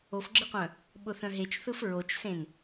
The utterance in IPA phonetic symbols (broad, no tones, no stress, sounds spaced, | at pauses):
o f ɡ͡ǁ ɯ qʷ œ̃ | ɓ ʊ θ œ̃ ɦ e t͡ʃ θ ɯ f ɹ o t͡ʃ s ẽ n